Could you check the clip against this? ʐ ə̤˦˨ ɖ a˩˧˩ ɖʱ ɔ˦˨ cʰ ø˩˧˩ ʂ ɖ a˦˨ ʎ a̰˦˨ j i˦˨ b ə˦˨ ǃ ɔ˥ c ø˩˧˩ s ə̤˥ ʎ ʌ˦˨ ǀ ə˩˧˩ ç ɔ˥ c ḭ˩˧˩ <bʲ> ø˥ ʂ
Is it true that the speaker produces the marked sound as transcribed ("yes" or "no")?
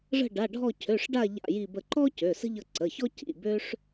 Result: no